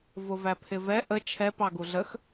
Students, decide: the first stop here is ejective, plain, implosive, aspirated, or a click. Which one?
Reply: aspirated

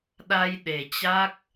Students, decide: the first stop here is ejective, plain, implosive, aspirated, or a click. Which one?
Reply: implosive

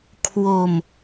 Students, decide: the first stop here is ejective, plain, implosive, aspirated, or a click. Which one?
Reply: aspirated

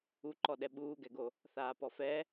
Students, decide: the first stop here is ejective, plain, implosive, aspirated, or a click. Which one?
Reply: click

